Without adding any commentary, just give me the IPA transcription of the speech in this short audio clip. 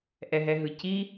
ʔ ɛ ɦ ɛ ɦ ɯ c i

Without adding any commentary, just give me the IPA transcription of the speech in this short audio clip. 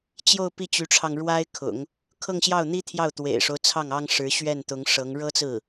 t͡ɕ j o˥˧ ʊ̯ p i˥˩ t͡ɕ y˧˥ ʈ͡ʂʰ ɑ˧ ŋ ɻ w a˥ ɪ̯ kʰ ʊ̰˨˩˦ ŋ | kʰ ɤ˥˧ ŋ ɕ j ɑ˥˩ ʊ̯ n̪ i˥ t̪ʰ j ɑ˥˩ ʊ̯ t̪ w ḛ˨˩ ɪ̯ ʂ o˦ ʊ̯ t͡sʰ ɑ˥˩ ŋ ɑ˥ ŋ ʂ ɻ̩˧˥ ɕ ɥ ɛ˥˩ n t̪ ʊ˧˥ ŋ ʂ ɤ˧˥ ŋ ɻ ɤ˥ t͡s ɹ̩˥˩

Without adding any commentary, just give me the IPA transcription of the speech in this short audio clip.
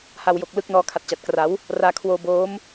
h a˧ w j o˨˩ k̚ l ɯ˦˥ k̚ n ɔː˦˥ kʰ a˨˩ t̚ t͡ɕ a˨˩ t̚ k r a˩˦ w | r aː˧ kʰ w oː˧ b oː˦˥ m

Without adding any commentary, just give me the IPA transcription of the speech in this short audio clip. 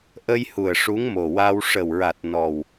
ʔ ə˧ j h u˨˩ ə̯ ʂ u˧˥ ŋ m o˨˩ w a˧ w ʂ ə˨˩ w ɹ a˨˩ t̚ n ɔ˨˩ w

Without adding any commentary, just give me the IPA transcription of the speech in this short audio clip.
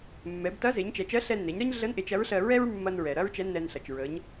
mː ɛ˩˧ b t ɐ˧˥ z e˩˧ ɲ t͡ʃ ɛ˩˧ t͡ʃ ɜ˧˥ ɬ ɛ˧ nː e˩˧ ɲ ɾ ɜ˥ ɲ ɮ ə˧˥ n ʔ e˩˧ t͡ʃ ɐ˧˥ ɹ ɬ ɜ˧ ɹ ɛ˥ ɹ mː ɐ˧ n ɹ ɛ˩ ɾ ɐ˥ ɹ t͡ʃ ɛ˧˥ nː ɛ˧ n ɬ ɐ˩ t͡ʃ ɹ ə˩˧ ɲ

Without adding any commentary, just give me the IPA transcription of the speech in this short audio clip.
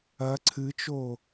ɐ ǀʰ ɨ t͡ʃ o

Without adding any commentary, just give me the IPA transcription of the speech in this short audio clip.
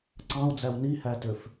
ǀ ɑ̃ u̯ d͡z æ w n i h æ t ø f

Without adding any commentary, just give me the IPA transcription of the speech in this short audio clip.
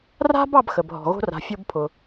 r a̤˦ b ɑ˦ b x ə˨ b ɦ ɔ̤˨ ɣ o̤˦ r a̤˨ fʲ o˦ b pʰ ʊ˨

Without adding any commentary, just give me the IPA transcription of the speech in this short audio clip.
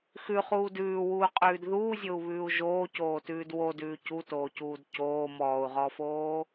x ʉ χ uː d ʉː w uː qʼ ʉː d ð uː zʲ o u̯ β ʉː u̯ ʒ oː c oː t ʉː d w o d ʉː c u t oː c uː d c oː m ɔː u̯ ʁ ɔː f oː

